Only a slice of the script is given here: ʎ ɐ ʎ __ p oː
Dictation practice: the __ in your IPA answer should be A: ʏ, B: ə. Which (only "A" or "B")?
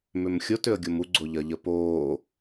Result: B